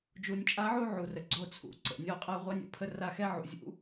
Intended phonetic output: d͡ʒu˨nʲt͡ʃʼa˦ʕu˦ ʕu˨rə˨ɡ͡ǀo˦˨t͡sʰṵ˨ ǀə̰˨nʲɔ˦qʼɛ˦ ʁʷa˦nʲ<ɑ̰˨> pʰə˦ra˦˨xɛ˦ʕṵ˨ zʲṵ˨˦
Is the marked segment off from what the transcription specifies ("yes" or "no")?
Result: yes